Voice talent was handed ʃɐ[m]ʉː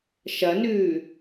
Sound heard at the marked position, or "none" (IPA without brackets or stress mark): n